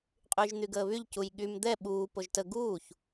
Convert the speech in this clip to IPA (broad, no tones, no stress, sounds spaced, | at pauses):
qʼ yː ʒ n̪ y ɡ əː β y ʎ c u j ɠ y m d̪ ɛ ɓ uː p o ʒ t ə ɡ uː ç